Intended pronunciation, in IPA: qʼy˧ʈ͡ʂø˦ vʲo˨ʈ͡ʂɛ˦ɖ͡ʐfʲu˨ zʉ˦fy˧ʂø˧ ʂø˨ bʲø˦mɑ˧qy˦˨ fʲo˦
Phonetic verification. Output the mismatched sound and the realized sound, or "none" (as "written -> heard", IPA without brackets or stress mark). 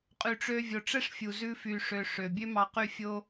ɖ͡ʐ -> ʂ